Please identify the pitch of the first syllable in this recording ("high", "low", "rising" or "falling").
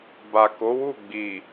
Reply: low